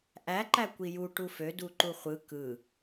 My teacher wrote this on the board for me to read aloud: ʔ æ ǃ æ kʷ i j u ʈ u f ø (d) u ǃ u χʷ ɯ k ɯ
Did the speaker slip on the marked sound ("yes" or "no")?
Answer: no